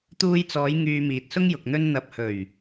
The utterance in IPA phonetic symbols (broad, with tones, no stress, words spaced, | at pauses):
t̪uː˧jt͡sɔː˨˧j ŋyː˧miː˨t̚sʊ˥ŋjʊ˨k̚ n̪ɵ˧n n̪ɐ˨p̚hɵ˨˩ɥ